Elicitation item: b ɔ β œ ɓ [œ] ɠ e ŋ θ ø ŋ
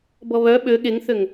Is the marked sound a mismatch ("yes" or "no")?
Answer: yes